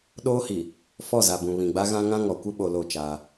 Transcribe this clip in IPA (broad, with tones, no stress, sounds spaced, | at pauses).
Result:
ɗ oː˦ h i˨ | f ɔ˦˨ z a˨ b ũ˨ β ĩ˨ ɡ͡b a˦ ɣ ã˦ ŋ ã˦ ŋ ɔ˨ kʷ ɪ˦ ɓ o˨ l o˦˨ t͡ʃ aː˦